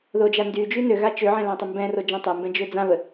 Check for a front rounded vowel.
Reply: present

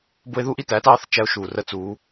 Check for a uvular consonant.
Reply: absent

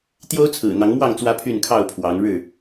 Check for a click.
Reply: absent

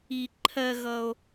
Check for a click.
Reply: present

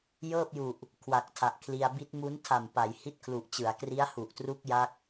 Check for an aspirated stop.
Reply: present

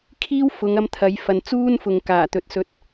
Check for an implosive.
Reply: absent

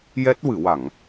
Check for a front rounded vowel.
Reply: absent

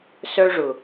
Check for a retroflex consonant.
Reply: present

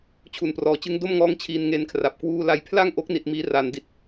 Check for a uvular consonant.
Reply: absent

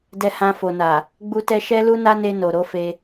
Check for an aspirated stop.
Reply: absent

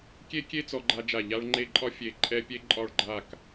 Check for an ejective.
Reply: present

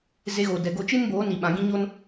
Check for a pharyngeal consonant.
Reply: absent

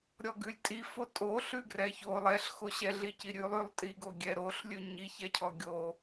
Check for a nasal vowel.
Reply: absent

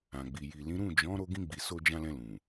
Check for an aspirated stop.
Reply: absent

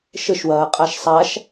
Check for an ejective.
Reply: present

